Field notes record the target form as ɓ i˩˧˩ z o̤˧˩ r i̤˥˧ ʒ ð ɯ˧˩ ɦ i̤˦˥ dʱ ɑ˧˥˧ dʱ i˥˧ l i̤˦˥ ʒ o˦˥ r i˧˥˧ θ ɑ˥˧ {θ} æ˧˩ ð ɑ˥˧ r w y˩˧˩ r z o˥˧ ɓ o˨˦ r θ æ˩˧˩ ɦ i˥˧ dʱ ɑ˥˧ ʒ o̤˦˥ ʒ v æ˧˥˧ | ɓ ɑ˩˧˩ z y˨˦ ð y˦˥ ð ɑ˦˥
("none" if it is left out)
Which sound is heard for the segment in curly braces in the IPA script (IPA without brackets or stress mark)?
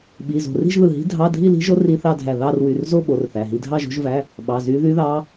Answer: dʱ